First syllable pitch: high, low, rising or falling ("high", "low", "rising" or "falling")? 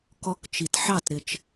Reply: high